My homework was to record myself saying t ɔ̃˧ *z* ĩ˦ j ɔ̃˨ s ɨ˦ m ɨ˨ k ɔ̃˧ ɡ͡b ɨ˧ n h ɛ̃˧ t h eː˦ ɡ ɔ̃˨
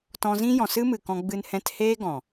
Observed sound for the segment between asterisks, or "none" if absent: z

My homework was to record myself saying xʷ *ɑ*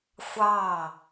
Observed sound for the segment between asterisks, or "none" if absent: ɑ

